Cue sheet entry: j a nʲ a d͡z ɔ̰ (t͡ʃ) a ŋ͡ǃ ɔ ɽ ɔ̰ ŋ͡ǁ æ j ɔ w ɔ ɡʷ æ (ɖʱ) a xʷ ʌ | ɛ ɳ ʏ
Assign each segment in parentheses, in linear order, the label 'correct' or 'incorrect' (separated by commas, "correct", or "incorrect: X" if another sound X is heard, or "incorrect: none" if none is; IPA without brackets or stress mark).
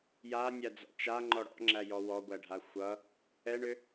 correct, correct